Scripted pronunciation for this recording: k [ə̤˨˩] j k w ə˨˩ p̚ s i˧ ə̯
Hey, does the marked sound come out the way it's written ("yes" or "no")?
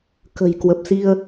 yes